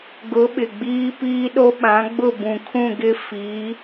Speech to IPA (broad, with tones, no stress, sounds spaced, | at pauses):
ɡ ʊ˨˦ ɓ ɪ˨ ɡ͡b iː˦ p iː˦ ɗ o˦ ɓ ã˨˦ ɡ͡b ʊ˦˨ b ũ˨ kʰ ũ˦˨ ɡ ɪ˦ f iː˨˦